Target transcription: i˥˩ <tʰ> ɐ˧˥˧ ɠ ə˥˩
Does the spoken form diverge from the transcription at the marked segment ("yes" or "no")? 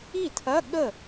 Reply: no